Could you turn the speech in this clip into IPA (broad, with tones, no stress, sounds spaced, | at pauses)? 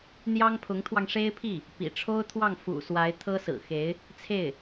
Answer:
n̪ j ɑ˥ ŋ pʰ ʊ˧˥ ŋ t̪ʰ w ɑ˧ ŋ ʂ e˥ ɪ̯ pʰ i˥˩ | p ḭ˨˩ ʈ͡ʂʰ o˥ ʊ̯ t̪ʰ w ɑ˥˩ ŋ f ṵ˨˩ s w a˧˥ ɪ̯ t̪ʰ ɤ˥ s ɹ̩˨˩ x e˧˥ ɪ̯ | t͡sʰ e˥˩ ɪ̯